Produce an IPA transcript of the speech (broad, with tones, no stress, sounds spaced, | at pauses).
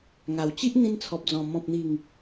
ŋ a˨˩ w t͡ɕ i˦ ʔ n̪ ĩ˧ n t͡sʰ ɔ˨ p̚ d͡z ɔ̃˨˩ m ɔ̃˨ p̚ n̪ i˨˩ ŋ